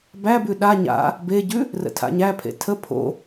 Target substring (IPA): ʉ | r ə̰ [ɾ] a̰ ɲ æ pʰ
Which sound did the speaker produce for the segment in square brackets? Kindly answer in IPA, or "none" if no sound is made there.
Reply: tʰ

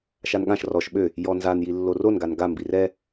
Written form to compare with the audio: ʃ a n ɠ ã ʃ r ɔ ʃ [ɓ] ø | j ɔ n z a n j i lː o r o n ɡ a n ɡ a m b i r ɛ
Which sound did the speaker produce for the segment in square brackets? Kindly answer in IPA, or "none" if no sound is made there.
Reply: ɓ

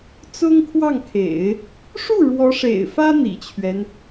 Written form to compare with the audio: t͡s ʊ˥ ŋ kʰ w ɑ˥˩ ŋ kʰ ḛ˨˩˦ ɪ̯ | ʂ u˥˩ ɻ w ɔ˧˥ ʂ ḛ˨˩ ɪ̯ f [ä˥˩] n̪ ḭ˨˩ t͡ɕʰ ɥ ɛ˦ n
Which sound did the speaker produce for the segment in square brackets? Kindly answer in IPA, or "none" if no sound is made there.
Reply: ä˥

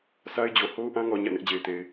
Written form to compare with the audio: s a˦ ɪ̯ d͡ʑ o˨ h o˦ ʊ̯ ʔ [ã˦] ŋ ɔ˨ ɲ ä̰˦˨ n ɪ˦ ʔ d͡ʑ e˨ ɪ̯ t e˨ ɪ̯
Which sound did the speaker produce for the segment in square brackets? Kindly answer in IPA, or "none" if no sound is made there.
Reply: ã˦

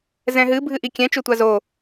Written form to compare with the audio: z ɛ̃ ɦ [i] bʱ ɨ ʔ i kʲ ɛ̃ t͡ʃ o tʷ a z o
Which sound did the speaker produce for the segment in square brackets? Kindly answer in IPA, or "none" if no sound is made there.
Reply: ɨ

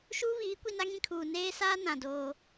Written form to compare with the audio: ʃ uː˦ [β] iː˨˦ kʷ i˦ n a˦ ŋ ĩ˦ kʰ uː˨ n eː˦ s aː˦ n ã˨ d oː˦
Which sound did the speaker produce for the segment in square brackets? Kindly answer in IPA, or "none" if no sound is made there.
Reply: β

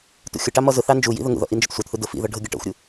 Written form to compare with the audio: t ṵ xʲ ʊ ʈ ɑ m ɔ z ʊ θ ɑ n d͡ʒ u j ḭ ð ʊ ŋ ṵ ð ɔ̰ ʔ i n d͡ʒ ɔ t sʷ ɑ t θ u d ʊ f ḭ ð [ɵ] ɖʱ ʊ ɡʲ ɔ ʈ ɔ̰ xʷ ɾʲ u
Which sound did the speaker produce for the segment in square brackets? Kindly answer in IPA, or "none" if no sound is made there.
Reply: ɔ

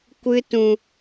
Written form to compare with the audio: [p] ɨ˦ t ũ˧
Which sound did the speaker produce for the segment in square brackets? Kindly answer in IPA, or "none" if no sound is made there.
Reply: kʷ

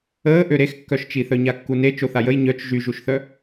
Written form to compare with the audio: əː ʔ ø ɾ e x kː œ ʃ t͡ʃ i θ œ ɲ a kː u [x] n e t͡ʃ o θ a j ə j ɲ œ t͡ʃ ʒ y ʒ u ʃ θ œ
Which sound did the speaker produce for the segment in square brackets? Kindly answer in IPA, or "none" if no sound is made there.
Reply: none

